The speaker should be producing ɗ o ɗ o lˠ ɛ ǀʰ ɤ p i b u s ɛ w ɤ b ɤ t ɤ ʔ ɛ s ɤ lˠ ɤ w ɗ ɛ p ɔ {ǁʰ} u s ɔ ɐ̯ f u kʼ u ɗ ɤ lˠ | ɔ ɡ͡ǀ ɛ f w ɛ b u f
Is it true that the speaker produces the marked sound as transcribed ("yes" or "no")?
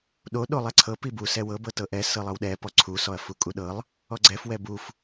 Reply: no